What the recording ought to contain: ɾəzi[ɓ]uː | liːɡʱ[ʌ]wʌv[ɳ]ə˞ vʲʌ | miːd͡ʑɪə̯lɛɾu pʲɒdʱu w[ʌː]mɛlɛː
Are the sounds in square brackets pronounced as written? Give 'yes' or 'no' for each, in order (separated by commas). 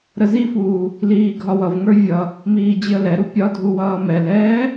no, no, no, yes